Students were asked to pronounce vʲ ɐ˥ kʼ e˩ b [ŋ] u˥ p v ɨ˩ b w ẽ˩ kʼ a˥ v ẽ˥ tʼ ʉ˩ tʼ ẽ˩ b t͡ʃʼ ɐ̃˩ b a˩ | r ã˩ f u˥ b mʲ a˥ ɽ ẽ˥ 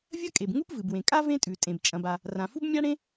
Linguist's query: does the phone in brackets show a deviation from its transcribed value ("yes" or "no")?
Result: no